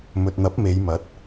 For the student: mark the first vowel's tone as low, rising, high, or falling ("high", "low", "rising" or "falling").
low